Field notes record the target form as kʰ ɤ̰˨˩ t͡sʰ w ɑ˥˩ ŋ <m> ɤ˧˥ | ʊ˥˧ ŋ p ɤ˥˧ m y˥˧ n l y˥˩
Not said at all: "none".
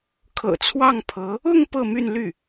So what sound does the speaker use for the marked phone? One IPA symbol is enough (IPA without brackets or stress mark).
pʰ